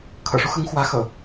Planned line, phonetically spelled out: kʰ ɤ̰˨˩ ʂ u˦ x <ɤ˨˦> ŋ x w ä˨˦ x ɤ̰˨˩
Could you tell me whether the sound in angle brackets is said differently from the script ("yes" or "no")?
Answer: no